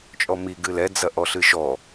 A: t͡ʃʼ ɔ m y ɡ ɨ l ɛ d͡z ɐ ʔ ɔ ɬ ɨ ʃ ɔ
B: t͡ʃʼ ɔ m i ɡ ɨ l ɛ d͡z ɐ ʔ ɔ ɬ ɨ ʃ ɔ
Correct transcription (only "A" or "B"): B